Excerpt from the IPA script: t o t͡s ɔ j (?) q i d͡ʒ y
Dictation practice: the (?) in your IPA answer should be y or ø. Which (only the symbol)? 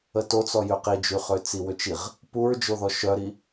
ø